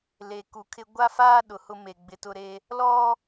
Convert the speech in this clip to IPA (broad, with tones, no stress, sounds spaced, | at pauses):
l e˨ k u˨ kʰ ɪ˦ ɡʷ a˦ f aː˦ ɗ ʊ˨ h ʊ˦ m e˨ ɡ͡b ɪ˦ t ʊ˦ ɾ e˦ | l ɔ˦